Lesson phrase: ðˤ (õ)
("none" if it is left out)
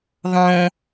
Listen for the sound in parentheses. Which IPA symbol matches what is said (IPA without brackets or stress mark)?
õ